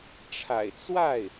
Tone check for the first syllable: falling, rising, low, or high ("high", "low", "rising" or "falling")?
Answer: low